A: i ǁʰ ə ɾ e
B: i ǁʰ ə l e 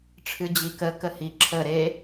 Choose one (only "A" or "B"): A